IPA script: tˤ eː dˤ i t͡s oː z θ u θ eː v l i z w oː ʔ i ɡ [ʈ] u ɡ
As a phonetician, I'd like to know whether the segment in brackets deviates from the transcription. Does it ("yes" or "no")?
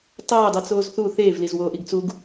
yes